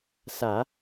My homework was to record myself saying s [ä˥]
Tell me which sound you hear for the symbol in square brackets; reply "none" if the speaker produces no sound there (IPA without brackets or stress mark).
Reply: ä˨˩˦